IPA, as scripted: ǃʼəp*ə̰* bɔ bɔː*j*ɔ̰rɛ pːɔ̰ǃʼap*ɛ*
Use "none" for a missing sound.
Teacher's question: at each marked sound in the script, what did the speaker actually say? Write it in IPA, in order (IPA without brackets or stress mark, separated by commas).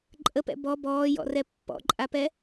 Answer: ɛ̰, j, ɛ